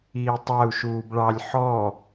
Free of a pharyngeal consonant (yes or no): no